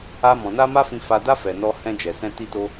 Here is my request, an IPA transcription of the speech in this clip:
a˧ m ɔ̃˨ n a˧ m a˦ f ĩ˧ f a˧ d a˦ f ɛ˧ n ɔ˦ h ɛ̃˧ d͡ʒ ɛ˨ s ɛ̃˧ t i˦ t o˦

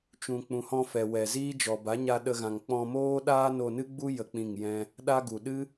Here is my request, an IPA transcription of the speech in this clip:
t͡ʃ ũ˨ k͡p ũ˨ h ɔ̃˧ f ɛ˨ w ɛ˨ z iː˦ d͡ʒ ɔ˨ b a˨˦ ɲ a˧ ɗ ə˧ ɣ ã˨ ŋ k͡p ɔ̃˧ m oː˦ ɗ aː˦ n o˧ n ɨ˦ ɡ͡b u˦ j ə˧ k͡p ĩ˦˨ ŋ j ɛ̃˦ | ɗ a˦ ɡ u˨ ɗ ɨ˦

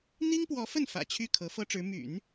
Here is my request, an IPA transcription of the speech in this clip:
n̪ i˥ ŋ p w ɔ˧˥ f ə˥˩ n f ä̰˨˩ t͡ɕʰ y˥˩ kʰ ɤ˧˥ f ɤ˥ ʈ͡ʂ ɻ̩˧˥ m y̰˨˩˦ n

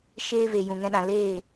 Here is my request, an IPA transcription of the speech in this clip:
ʃ eː˧ v e˨ j ũ˨ ŋ ɛ̃˧ ɗ ã˨ l eː˦˨

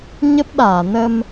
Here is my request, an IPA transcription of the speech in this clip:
ɲ ə˦˥ p̚ ɗ aː˧˩ n ə˧ m

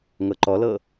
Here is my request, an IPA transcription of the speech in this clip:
ŋ ɤ ǃ ɔ l ɤ

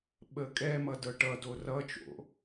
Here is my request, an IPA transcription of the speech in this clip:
ɓ ə kʼ ɛ m ʌ d ɤ ʈ ʌ d o r ʌ t͡ʃ o̰

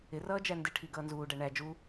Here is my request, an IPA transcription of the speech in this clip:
ɪ r ʌː d͡ʒ æ n d ɪ ʈʰ i ɡ ʌː n z uː ɖ æ ɳ æ d͡ʒ u

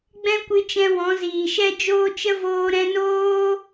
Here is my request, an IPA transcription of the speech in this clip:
ɡ͡b ɛ̃˦ kʷ ɨ˧ t͡ʃ ɛ̃˧ w ɔ̃˨˦ z iː˨ ʃ ɛ˦ d͡ʒ oː˦ t͡ʃ ə˦ v oː˧ ɾ ɛ̃˧ n oː˦

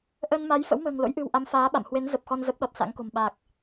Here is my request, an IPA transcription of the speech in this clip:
ʔ əː˧ n m a˨˦ j f ə̰˧˥ w m ə̤ː˨˩ ŋ l o̰˧˥ j ʔ ɨ̤˨˩ w ʔ a˨˦ m f aː˨˦ ɓ a̰˧˨ m h w e˨˦ n z ə˨˩ p̚ x ɔ˧ n z ə˦˥ p̚ ɗ ɔ˨˩ t̚ s a̰˧˥ ŋ k o̤˨˩ m ɓ aː˨˩ k̚

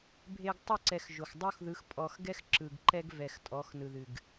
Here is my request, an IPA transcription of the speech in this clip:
bʱ e˨ ɡ tˤ ə˦˨ ǀ ɛ˨ x ʒ o˨ x dˤ o˦ x ð ɯ˨˦ x pʼ ɔ˨ x ɡ ɛ˦ x ǁ ɯ˨ ɡ ǃ ɛ˦ ɡ v ɛ˨ x tʼ ɔ˨˦ x n ɯ˨ ð ɨ˨ ɡ

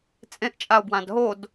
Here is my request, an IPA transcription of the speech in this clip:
t͡sʼ ẽ ʔ t͡ʃʼ a o̯ b w ã d ɦ o d

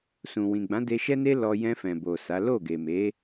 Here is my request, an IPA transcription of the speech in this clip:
s ũ˨ w ĩ˨ ɡ͡b ã˨˦ d e˧ ʃ ɛ˦ n e˦ l ɔ˧ j ɛ̃˧ f ɛ̃˨ b o˨ s a˨˦ l o˦˨ ɡ e˨ m e˨˦

